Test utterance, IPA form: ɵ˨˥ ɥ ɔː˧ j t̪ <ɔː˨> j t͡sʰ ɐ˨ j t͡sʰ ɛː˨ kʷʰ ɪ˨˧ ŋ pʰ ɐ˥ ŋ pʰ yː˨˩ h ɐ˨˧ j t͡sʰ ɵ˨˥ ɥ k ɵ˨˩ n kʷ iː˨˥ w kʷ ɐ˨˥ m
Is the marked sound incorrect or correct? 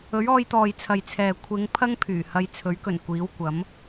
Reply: correct